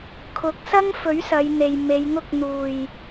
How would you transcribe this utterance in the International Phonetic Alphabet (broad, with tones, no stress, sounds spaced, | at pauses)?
kʰ ʊ˨˥ k̚ s ɐ˥ ŋ f ɵ˨˥ ɥ s ɐ˨˧ j n̪ e˨ j m e˨˧ j ŋ ʊ˥ k̚ n̪ uː˨˩ j